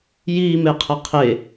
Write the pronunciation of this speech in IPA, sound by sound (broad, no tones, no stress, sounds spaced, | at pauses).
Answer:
j iː m e qʰ ə qʰ e